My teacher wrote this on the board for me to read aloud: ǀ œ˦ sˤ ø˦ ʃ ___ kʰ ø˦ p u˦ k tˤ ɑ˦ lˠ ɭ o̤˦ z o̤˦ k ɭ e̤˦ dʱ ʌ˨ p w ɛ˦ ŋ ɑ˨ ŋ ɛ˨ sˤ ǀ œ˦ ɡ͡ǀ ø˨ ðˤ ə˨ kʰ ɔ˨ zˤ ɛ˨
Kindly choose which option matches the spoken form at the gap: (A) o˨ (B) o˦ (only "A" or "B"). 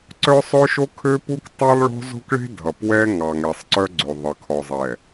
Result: B